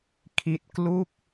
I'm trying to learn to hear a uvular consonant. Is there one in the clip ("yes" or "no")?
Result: no